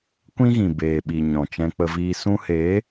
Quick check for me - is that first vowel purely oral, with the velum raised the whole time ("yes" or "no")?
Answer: no